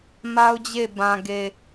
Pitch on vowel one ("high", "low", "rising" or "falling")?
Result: high